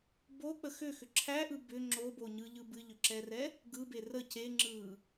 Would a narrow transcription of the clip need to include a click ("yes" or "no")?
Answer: yes